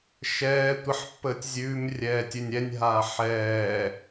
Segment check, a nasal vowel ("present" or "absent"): absent